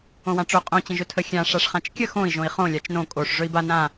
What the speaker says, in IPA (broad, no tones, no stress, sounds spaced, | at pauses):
õ w ã ʈ͡ʂ o qʼ õ t͡ɕ ə̃ ʒ ɵ tʰ ə xʲ ã ʂ a ʂ χ ã t͡ʃ kʲ ə x õ i̯ ʒ õ i̯ χ õ lʲ a t͡ʃ n õ kʼ o ʂ ʐ ɵ i̯ b a n ã